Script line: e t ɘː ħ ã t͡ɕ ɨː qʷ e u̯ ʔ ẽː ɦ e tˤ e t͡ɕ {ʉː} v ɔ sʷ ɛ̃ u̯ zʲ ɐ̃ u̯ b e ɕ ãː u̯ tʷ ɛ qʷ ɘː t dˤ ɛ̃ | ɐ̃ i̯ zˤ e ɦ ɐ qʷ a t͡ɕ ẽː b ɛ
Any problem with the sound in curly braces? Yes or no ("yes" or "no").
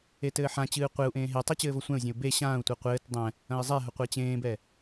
yes